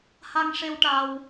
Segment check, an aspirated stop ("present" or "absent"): absent